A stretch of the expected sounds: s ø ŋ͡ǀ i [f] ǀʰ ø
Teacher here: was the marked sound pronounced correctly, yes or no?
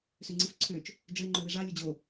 yes